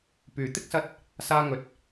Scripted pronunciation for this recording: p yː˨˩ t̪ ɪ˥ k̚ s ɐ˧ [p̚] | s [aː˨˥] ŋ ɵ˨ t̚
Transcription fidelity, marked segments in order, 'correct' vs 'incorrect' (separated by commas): incorrect, incorrect